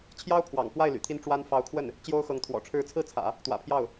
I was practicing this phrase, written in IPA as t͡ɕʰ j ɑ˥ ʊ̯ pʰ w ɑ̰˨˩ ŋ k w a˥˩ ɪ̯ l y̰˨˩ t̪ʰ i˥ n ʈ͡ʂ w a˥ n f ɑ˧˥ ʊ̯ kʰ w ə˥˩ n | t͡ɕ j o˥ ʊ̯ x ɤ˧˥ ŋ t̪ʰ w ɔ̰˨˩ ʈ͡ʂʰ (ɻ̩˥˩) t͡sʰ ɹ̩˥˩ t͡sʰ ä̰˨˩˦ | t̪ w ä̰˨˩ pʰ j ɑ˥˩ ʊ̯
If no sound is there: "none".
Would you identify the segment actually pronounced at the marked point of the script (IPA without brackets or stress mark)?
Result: ɻ̩˧˥